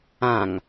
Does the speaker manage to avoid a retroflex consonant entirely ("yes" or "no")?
yes